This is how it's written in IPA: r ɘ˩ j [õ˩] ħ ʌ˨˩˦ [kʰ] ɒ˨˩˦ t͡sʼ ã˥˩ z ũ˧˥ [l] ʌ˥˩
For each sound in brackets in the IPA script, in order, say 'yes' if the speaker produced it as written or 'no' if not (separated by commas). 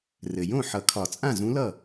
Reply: no, yes, yes